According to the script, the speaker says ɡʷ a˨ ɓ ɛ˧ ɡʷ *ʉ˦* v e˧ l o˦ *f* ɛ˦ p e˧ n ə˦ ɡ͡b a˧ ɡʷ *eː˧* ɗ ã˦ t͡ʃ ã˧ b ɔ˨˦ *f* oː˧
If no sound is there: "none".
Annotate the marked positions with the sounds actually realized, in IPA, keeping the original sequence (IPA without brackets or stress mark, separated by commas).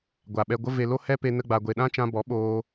ə˦, h, e˧, ɓ